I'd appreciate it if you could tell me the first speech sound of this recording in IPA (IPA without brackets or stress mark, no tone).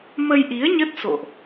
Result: m